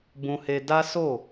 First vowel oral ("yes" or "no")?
no